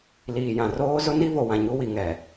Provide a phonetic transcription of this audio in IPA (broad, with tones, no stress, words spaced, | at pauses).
liː˨jã˨roː˦ zʊ˦ni˦vo˨wã˨ ɲu˦wi˨ ŋɛ˨